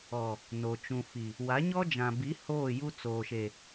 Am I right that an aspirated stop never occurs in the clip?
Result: yes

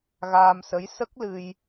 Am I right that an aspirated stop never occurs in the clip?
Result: yes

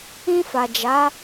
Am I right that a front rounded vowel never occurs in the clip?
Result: yes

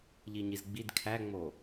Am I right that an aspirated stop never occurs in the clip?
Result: no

